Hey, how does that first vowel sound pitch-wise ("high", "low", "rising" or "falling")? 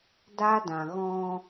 high